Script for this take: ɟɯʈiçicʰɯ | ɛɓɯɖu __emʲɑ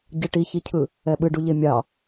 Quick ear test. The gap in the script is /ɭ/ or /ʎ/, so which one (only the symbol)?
ʎ